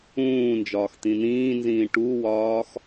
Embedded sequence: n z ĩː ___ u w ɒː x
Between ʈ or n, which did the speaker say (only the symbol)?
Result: ʈ